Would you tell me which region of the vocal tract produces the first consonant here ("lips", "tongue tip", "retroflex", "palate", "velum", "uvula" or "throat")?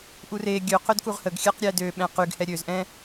throat